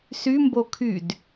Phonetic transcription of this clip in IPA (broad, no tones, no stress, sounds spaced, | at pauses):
s y m b o kʰ y d